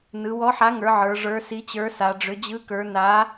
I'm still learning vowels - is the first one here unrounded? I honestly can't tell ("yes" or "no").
yes